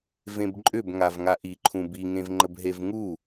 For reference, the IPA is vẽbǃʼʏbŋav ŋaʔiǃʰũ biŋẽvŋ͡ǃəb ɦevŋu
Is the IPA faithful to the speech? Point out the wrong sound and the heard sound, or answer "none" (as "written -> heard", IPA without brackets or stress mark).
none